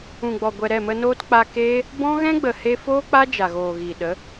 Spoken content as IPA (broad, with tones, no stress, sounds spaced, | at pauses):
ũ˨ ɡ͡b ɔ˨ ɡʷ ɛ˨ ɾ ɛ˦˨ m ə˧ n oː˦ t k͡p a˧ k eː˦ | b ɔ̃˦ ɣ ɛ̃˦ ɡ͡b ə˨ h e˧ f oː˦ k͡p a˦ d͡ʒ a˨ ɣ oː˨ ɣ iː˨ ɗ ə˨˦